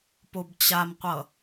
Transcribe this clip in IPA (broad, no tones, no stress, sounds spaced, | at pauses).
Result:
p o b t͡ɕ a m qʷ ʌ